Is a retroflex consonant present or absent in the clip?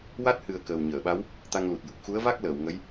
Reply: absent